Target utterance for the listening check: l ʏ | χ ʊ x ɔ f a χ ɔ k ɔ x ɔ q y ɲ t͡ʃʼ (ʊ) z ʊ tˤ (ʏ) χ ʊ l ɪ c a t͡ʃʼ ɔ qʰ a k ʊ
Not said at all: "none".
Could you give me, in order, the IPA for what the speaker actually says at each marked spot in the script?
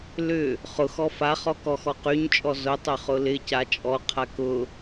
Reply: ɔ, ʏ

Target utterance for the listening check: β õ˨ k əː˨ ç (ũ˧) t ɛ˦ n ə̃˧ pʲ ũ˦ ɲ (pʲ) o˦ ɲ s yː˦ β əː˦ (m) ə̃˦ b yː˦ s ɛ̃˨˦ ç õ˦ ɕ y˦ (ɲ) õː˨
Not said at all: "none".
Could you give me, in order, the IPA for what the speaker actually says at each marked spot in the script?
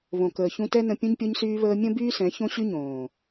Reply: ũ˧, pʲ, mʲ, ɲ

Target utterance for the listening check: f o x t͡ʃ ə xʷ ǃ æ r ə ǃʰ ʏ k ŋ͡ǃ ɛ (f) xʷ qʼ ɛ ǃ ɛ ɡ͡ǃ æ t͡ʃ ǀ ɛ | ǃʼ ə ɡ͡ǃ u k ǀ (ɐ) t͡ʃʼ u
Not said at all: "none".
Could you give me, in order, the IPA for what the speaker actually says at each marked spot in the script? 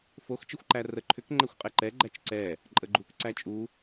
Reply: none, æ

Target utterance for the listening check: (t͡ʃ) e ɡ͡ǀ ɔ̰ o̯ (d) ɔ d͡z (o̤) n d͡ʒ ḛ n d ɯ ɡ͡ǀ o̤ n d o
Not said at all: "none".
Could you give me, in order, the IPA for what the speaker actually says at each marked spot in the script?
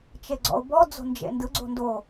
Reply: t͡ʃ, b, o̤

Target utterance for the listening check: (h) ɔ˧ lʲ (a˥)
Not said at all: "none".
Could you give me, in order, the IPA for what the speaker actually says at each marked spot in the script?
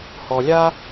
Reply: h, a˥

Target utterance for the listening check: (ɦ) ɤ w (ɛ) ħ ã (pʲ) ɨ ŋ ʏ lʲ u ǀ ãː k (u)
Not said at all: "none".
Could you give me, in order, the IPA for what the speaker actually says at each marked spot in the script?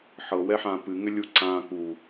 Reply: ħ, ɛ, p, u

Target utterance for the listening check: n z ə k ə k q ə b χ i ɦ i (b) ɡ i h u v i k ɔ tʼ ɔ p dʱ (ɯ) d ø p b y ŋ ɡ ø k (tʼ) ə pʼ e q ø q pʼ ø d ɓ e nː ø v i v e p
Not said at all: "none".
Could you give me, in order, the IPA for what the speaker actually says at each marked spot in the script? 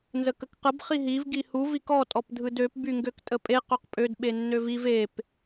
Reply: v, ɯ, tʼ

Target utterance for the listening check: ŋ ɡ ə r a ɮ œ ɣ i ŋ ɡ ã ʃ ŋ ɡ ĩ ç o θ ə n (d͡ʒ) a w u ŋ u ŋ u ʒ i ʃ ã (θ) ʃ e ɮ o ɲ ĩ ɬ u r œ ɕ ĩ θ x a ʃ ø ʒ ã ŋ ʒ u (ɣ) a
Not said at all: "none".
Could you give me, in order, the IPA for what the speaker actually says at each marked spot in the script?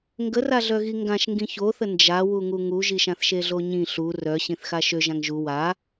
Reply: d͡ʒ, θ, w

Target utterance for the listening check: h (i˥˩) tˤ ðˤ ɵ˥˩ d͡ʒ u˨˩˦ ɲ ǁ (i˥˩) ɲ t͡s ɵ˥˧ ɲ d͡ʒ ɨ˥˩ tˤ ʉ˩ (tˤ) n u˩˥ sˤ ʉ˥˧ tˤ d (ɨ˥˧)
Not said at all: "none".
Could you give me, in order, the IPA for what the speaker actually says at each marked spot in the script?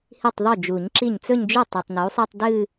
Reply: i˥˩, i˥˩, tˤ, ɨ˥˧

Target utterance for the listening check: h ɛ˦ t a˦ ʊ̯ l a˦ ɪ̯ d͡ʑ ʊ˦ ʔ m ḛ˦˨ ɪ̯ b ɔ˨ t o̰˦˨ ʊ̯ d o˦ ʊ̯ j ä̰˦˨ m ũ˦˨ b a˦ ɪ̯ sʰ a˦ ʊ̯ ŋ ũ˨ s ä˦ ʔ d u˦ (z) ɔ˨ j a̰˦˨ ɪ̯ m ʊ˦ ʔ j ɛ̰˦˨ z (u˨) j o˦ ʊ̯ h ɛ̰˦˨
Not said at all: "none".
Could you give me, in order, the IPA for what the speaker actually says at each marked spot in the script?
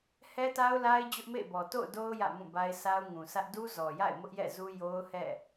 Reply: z, u˦

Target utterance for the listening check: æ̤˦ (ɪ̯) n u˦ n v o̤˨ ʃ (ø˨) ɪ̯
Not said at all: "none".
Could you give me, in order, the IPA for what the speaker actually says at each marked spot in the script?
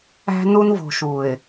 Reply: none, u˨

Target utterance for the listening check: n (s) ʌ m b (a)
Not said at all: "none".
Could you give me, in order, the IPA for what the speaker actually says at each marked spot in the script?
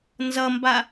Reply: z, a

